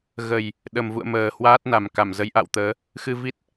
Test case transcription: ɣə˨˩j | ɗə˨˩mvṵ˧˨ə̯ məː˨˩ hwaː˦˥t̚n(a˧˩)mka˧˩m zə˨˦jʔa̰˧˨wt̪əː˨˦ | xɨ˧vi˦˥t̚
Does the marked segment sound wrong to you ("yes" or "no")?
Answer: yes